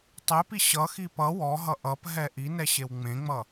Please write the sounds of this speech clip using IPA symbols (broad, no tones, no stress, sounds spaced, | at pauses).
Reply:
tˤ e p i ɕ ʌ x i p ʌ w ɔ ɦ ʌ ʔ ʌ p ɦ ɛ ʔ i n ɛ ɕ e w ŋ͡m ẽ ŋ͡m ʌ